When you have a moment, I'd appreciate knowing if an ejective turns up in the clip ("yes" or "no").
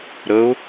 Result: no